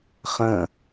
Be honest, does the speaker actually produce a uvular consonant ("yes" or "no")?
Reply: yes